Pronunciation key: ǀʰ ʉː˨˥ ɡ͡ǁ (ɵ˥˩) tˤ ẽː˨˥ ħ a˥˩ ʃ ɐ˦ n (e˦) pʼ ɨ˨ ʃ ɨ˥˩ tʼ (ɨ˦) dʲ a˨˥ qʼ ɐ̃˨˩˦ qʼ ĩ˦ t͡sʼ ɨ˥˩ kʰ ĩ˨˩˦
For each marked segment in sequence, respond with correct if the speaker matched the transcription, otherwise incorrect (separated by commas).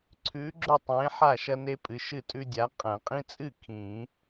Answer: correct, correct, incorrect